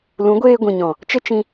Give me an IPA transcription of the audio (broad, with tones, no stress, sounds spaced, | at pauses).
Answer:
l ũ˨˦ ɡʷ eː˧ ɡʷ ĩ˨ ɲ ɔ̃˨ | t͡ʃ ə˦ t͡ʃ ĩ˧